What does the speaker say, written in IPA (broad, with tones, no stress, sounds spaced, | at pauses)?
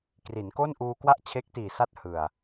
k r i˩˦ n k o˥˩ n ʔ uː˧ k w a˥˩ ʔ t͡ɕʰ e˦˥ k̚ t iː˨˩ s a˦˥ t̚ h ɯ˨˩ a̯